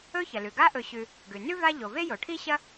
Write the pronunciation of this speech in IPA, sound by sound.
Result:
ɵ˦çɐ˩lʉ˩ ɡa˦ʔɵ˨ɕʉ˨ | ɡʉ˩ nʉ˥va˦ʎo˩ve˥ jo˩ʈʰi˥ ɕɐ˥

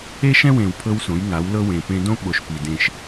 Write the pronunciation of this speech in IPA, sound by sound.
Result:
e˦ʃɛ̃˦wẽ˨w pʰɤ˦wsõ˨˦jŋa˨˦w lɤ˦wẽ˨pẽ˦ dõ˦ ɓo˨ʃpi˨ dẽ˦ʃ

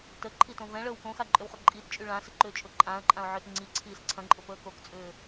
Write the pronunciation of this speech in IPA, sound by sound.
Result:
təǃʰitõ vɛ̃ɭəːw kõxaǃʼʏwχʊ ǃʼitt͡ʃʼy ɭãsəǃʏːt͡ʃʼʊ ǃʼãə̯ǃʼãʊ̯ʕʏːt ŋ͡ǀiǀʰiːs ǀʰɐ̃ǃʼʊpəː kokt͡sʼʏː

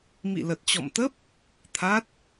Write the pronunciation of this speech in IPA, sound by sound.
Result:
mḭ˧˨lə˨˩t̚t͡ɕɔ̰˧˨mt̪ə˦˥p̚ | t̪ʰa˦˥t̚

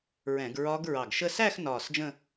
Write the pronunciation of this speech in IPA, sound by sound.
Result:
ɹɛ̃˧˩˧ɡ ɹɒ˦˥ɡ ɹɑ˧˩ɡʃə˥˧ sæ˥˧x nɒː˧˩sd͡ʒə̃˥˧

